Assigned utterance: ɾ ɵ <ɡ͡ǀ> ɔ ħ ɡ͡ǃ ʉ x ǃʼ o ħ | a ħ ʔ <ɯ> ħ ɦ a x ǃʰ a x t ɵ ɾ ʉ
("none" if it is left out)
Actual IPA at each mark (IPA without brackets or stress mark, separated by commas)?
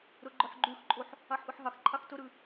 ɡ͡ǃ, ɯ